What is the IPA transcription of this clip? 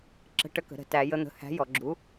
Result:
ǁə̤˨˥ʈə˨˥kə̤˩˧ ɾə̤˩˧tæ˩˧jə˨˥n̪ə̤˩˧ hæ̤˨˥jɔ˩˧ɡ͡ǁu˨˥

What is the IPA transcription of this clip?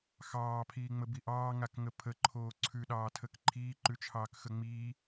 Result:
xɑːpʰiːŋ͡məbi ʔɑːŋakŋə pʰəǃʰoː ǀʰʉɗɑːtʰək ǃʰiːǃʉt͡ʃʰɑːkxə ŋ͡miː

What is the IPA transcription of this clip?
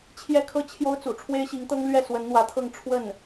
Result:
t͡ɕʰjɛ˥kʰɤ˥˩ t͡ɕʰjo˥ʊ̯t͡sṵ˨˩ ʈ͡ʂʰwe˥ɪ̯ɕi˧˥ŋt̪ɤ˥ŋ lɥɛ˥˩ swə˧˥nn̪wä˧˥t̪ʰɤ˥˧ŋ ʈ͡ʂʰwə˥˩n

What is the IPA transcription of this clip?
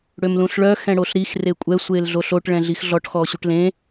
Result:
ɽømlũɬɭœ xɛ̃ɽoɬɾix rekʷʼɛ sʷeːlɮoɬoʈ ɭɛ̃ɮixɮɔʈ xɔːɕuʈlẽ

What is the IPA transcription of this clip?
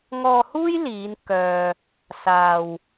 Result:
ŋɔː˧huː˥j liː˨˧n kœː˧ | saː˨w

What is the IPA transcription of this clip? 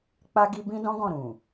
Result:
k͡pa˧ɡi˧ bĩ˦dɔ̃˦ɡɔ̃˦˨ ɾũ˨

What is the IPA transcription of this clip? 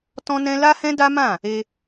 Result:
tɔ̃˦nɛ̃˦ la˦hɛ̃˦ da˦mã˦˨ | e˧

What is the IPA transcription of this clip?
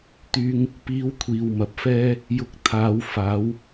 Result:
t̪yː˧ŋ | piː˧w kʷʰiː˨wmɐ˨p̚fɛː˥ | jʊ˧k̚ t̪ʰaː˨˧w faː˨˥w

